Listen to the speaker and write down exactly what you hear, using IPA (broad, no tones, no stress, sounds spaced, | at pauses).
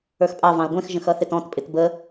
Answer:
ə˞ x pʼ ɑ v ɑ̃ ɐ̯ ɡʷ ɛ̃ x ʒ ə̃ x ʌ θ ɪ t ɔ̃ t pʼ ɪ t b ə